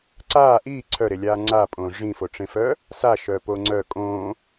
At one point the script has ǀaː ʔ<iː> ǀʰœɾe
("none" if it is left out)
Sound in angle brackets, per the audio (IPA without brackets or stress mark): iː